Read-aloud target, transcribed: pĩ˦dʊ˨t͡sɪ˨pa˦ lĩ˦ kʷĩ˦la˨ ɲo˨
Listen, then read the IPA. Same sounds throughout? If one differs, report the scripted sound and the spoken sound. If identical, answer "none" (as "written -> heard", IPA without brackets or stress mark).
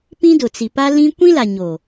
ɪ˨ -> i˨